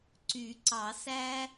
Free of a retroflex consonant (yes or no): yes